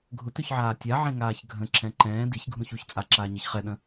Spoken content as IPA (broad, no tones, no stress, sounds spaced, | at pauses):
ɡʱ ʊ t ø ç ʕ aː tʲ a ʕ ẽ ŋ aː ç ɡʱ ə̃ ǁ ɛ̃ ǃ ɛ̃ː d i ç ɡʱ ũ ç u ç t͡sʼ a ǁ aː ɲ e ç χ ɛ ɗ ə̃